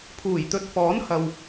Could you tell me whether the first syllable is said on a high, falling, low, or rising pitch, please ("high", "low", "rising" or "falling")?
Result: low